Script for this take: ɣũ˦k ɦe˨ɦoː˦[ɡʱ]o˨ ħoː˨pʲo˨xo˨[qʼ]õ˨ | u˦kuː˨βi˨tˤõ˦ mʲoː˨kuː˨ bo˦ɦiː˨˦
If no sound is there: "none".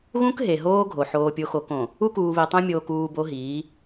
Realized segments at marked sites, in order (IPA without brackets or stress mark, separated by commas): ɡʱ, k